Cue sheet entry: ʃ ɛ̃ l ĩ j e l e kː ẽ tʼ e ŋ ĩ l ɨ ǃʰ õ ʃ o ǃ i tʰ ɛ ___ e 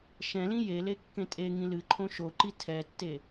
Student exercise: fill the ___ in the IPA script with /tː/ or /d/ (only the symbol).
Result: tː